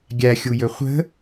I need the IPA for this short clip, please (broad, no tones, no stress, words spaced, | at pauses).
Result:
ɡʲæxʲujɵ χʷə̤